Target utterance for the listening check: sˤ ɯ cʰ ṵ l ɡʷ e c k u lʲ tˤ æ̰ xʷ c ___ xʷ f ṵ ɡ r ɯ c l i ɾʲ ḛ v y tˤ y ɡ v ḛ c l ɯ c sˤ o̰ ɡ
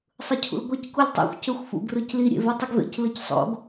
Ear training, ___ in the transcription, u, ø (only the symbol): ø